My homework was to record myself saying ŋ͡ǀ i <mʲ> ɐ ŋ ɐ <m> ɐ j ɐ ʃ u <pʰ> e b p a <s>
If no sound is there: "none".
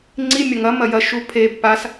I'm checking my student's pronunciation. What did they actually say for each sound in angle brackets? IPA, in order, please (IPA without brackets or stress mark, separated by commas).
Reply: mʲ, m, pʰ, s